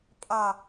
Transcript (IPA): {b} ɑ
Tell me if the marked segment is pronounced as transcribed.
no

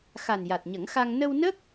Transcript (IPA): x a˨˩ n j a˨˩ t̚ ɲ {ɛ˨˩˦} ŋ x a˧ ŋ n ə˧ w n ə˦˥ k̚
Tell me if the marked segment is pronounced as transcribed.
no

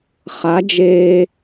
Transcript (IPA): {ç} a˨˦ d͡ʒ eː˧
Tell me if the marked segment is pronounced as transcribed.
no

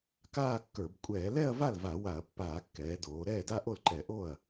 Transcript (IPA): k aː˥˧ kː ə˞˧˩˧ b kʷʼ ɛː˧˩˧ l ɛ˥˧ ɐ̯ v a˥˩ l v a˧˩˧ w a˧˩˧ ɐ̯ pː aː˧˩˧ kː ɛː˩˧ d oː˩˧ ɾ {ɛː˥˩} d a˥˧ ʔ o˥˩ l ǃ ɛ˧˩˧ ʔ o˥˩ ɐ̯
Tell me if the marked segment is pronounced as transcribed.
yes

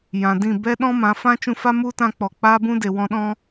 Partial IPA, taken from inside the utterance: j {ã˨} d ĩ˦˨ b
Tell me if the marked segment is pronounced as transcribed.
yes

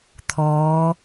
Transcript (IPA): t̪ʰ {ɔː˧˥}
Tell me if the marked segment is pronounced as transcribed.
yes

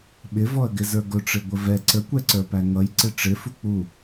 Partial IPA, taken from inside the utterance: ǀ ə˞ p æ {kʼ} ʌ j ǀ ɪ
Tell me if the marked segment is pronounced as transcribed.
no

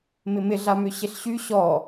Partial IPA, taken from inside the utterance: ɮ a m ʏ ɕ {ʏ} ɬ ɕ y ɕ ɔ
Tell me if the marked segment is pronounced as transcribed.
no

